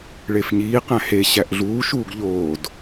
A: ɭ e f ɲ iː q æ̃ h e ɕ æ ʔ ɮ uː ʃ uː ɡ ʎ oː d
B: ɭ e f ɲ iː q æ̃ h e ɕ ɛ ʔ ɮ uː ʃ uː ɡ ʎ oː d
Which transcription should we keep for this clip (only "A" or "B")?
A